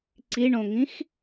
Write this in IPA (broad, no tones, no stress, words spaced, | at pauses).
ǀiɳõŋĩx